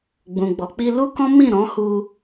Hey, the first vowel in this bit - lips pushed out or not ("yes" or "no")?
yes